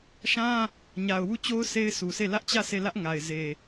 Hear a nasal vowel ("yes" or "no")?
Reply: yes